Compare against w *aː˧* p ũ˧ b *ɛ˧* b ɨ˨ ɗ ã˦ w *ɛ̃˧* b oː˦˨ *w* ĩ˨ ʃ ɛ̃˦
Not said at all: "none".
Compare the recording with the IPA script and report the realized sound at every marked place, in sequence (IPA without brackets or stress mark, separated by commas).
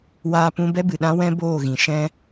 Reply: aː˧, ɛ˦, ɛ̃˦, ɣ